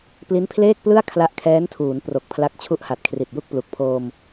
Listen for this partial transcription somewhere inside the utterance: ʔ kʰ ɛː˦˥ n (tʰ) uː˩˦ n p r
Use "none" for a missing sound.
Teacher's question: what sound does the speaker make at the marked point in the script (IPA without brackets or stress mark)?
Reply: tʰ